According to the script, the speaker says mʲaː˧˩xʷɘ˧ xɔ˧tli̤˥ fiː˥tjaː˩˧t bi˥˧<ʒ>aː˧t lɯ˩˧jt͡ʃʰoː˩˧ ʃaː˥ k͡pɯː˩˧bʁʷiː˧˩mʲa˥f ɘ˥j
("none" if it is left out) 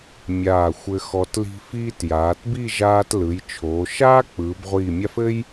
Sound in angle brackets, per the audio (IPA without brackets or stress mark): ʒ